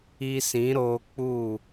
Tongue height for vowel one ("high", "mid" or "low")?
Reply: high